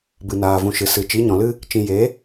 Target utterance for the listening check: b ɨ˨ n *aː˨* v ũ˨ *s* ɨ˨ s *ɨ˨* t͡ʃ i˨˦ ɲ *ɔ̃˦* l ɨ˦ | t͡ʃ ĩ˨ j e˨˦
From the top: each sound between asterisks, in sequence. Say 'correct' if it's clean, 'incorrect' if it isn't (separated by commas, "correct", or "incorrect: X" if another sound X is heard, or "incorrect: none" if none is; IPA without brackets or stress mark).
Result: correct, incorrect: ʃ, correct, incorrect: ɔ̃˨